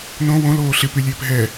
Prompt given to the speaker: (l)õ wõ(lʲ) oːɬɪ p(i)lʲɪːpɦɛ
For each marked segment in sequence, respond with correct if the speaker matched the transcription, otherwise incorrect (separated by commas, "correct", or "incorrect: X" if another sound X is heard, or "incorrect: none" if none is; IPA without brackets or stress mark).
incorrect: n, incorrect: l, incorrect: y